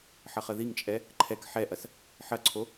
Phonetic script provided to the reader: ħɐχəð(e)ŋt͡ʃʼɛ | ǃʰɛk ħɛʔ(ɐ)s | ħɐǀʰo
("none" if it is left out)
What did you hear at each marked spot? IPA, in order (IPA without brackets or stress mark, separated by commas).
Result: i, ɐ